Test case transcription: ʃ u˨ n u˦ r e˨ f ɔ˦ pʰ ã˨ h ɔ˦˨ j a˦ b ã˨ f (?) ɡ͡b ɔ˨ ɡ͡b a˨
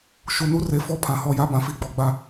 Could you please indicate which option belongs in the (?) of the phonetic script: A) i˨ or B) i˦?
A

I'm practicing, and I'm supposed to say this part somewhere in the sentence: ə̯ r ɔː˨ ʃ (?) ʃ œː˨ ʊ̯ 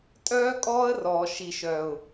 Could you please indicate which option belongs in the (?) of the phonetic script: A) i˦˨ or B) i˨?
B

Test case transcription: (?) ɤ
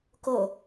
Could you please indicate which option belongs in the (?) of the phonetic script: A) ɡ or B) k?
B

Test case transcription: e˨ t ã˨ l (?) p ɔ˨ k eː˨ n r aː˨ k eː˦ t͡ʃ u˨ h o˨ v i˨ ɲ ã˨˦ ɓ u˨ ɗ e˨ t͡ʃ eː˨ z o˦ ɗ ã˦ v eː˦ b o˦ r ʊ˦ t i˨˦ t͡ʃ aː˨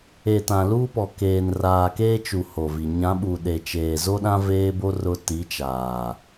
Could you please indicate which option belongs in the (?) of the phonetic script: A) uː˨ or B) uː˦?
B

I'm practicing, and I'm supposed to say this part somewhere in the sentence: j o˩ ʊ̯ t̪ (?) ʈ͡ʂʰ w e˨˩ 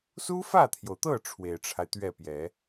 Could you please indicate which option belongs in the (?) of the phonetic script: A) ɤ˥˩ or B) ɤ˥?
A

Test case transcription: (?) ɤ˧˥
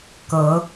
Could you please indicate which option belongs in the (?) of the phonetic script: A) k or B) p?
A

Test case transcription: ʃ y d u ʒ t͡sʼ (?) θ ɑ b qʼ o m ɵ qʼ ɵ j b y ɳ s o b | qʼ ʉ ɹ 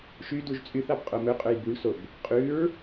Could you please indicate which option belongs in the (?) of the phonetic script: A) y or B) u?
A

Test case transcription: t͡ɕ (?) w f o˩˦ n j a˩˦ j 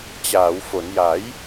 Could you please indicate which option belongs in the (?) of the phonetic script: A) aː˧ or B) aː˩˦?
B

